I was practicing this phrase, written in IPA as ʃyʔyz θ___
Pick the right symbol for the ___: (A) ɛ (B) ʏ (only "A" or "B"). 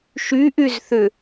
B